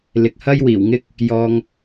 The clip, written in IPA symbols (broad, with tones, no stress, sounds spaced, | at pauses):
l ɪ˨ k̚ h ɐ˥ j w iː˨˩ w ŋ ɪ˥ k̚ | j ɔː˧ ŋ